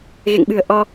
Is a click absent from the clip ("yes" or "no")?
yes